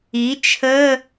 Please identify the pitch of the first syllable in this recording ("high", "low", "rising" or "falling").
rising